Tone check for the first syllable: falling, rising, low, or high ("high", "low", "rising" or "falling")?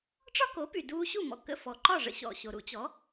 high